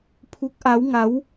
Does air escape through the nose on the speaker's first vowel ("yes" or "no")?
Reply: no